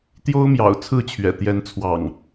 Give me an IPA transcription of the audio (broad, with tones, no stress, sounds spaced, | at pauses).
t̪ j o˦ ʊ̯ m j ɑ̰˨˩ ʊ̯ t͡sʰ ɹ̩˥˨ t͡ɕʰ ɥ ɛ̰˨˩ t̪ j ɛ˨˦ n t͡sʰ w ɑ̰˨˩ ŋ